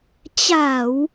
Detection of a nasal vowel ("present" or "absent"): absent